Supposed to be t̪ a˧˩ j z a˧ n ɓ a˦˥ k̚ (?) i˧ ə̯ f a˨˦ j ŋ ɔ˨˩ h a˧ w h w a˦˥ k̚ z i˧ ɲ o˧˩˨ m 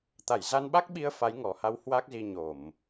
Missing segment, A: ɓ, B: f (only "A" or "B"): A